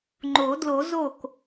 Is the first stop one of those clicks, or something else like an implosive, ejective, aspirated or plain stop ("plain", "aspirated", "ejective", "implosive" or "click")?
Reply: click